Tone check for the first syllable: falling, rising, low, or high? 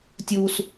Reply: high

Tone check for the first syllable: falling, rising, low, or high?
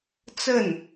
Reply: falling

